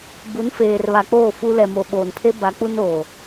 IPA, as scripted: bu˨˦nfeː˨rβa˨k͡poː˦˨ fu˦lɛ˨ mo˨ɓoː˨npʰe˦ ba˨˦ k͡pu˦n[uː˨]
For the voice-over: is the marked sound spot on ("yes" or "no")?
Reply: no